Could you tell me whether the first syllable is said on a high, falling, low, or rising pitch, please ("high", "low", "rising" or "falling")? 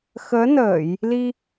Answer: rising